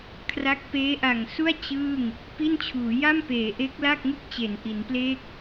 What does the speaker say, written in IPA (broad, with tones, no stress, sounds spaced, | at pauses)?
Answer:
kʰ r a˦˥ k̚ p eː˦˥ ʔ a˨˩ ŋ s u˥˩ a̯ t͡ɕ ɯː˥˩ ŋ | p i˥˩ n t͡ɕʰ uː˩˦ j a˥˩ m p eː˩˦ ʔ e˦˥ k̚ l a˥˩ k̚ ŋ ɯ˥˩ k̚ t͡ɕ e˩˦ n ʔ i˩˦ n p l eː˥˩ k̚